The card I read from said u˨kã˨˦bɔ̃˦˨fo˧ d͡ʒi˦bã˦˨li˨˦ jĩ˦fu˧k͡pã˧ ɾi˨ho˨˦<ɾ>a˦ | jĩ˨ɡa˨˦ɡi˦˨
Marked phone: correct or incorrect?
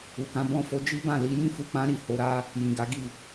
correct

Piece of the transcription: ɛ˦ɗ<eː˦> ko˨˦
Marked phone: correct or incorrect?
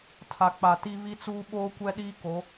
incorrect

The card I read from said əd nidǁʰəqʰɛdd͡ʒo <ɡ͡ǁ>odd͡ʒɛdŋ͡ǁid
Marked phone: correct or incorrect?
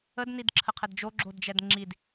correct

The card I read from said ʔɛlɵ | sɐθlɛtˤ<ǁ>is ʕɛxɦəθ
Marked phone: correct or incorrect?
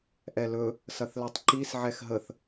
incorrect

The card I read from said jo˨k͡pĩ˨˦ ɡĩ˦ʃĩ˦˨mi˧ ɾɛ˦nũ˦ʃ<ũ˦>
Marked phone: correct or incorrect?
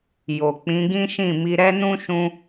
incorrect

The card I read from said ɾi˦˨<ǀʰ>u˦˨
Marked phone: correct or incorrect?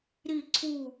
correct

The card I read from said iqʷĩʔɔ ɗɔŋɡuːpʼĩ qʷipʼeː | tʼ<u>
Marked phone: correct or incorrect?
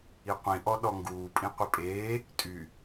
incorrect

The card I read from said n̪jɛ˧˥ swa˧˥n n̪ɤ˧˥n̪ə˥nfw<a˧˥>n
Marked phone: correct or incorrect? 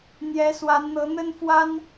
incorrect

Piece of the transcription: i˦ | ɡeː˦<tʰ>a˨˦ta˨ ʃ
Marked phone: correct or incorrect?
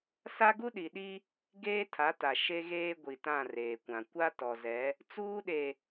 correct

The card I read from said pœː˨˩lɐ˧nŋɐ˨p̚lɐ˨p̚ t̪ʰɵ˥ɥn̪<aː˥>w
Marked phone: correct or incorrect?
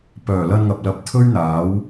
incorrect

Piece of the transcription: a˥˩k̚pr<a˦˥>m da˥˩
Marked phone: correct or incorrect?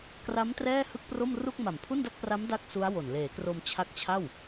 correct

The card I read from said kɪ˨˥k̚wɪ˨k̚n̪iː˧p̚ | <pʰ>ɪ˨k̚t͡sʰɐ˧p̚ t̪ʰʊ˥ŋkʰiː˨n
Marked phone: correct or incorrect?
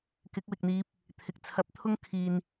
incorrect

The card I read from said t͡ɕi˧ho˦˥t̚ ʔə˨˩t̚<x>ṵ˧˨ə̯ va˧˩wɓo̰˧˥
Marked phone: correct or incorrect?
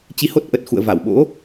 correct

